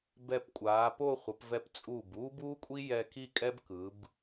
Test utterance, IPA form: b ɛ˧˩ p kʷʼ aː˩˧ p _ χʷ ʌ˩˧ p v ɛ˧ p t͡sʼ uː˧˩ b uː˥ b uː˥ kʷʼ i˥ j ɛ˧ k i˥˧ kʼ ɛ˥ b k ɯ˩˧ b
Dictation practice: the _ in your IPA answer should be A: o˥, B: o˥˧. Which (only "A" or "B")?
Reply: B